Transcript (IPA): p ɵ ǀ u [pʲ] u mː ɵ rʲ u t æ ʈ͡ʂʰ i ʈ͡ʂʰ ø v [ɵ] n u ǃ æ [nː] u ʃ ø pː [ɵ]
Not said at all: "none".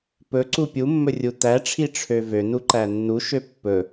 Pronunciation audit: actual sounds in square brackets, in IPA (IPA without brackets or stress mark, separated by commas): pʲ, ø, nː, ɵ